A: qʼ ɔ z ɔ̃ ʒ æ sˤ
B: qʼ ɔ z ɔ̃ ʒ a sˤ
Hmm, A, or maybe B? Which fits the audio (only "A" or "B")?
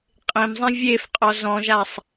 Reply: B